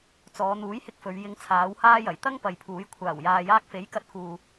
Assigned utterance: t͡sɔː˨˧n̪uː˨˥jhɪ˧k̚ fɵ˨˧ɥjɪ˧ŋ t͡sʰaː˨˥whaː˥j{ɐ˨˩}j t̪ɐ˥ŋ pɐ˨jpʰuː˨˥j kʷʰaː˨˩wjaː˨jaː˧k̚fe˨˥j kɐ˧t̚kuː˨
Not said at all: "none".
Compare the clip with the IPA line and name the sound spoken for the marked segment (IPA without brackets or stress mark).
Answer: ɐ˨˩